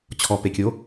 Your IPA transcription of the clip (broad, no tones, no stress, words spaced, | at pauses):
t͡ɕʰɔpekʲo